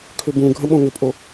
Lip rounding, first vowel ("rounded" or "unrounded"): rounded